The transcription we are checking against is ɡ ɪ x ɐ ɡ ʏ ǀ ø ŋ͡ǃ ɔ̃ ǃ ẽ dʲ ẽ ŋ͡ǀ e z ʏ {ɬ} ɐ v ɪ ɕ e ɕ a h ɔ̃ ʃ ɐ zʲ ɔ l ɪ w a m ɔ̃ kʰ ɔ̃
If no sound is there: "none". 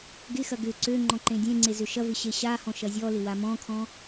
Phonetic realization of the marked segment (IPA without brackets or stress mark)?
ʃ